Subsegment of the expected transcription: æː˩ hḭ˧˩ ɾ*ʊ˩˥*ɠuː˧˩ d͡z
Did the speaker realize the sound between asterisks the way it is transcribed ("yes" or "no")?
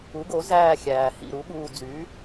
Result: no